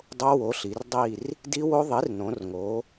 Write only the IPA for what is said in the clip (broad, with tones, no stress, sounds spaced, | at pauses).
dˤ o˦˥ w o˩˥ ɬ i˩˧ r dˤ i˦˨ r | d i˦˥ w o˦˥ ðˤ i˩˥ r n õ˩˧ r ŋ o˩˧